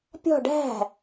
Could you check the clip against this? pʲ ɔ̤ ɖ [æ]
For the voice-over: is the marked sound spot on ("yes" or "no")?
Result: no